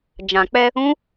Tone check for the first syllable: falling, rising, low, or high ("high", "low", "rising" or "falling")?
low